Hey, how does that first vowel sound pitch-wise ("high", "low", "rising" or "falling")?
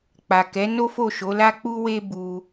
low